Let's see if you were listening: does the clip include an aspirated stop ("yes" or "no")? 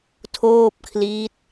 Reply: yes